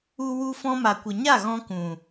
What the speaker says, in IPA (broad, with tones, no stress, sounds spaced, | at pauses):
u˧ w u˧ f ɔ̃˧ m a˨ kʷ ə˨ ɲ a˦˨ ɣ ɔ̃˦ k ũ˨